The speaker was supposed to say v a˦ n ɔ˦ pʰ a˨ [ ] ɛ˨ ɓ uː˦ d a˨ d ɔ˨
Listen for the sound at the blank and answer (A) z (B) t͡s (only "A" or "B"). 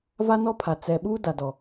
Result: B